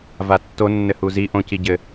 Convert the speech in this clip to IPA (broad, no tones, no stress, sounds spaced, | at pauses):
v a tː o nː ɘ h u z i ʔ õ c i ɟ ɘ